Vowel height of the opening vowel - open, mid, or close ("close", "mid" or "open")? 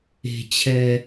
mid